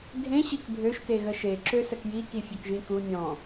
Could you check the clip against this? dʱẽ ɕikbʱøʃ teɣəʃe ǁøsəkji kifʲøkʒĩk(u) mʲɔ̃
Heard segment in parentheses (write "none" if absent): u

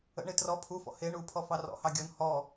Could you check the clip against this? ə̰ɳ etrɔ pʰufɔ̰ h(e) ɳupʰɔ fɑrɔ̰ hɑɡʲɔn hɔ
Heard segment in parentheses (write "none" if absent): e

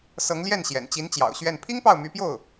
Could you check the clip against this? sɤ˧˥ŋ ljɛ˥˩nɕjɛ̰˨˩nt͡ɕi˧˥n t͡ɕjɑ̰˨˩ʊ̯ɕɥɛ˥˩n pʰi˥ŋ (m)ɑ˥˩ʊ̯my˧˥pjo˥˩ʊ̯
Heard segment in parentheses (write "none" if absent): p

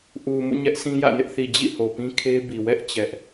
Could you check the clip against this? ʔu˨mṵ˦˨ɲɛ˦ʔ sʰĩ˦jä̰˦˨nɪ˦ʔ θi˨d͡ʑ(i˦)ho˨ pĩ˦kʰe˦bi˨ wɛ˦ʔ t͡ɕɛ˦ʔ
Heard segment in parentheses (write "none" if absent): ḭ˦˨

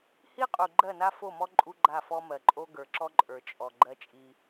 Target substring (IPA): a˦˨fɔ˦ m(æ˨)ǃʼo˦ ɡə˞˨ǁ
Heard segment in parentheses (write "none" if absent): ɜ˨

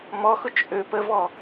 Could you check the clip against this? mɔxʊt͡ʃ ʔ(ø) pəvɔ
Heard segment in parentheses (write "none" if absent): ø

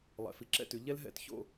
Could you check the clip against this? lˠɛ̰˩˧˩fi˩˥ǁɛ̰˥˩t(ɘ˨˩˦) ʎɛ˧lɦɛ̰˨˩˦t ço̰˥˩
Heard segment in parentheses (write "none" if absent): ʉ˨˩˦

